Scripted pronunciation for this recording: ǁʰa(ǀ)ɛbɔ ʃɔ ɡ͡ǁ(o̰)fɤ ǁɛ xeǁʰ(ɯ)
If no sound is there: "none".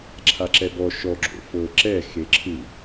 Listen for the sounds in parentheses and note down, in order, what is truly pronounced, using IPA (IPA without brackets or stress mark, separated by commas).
ǁ, o̰, ɯ